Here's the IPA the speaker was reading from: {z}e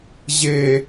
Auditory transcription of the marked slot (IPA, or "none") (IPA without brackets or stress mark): ʑ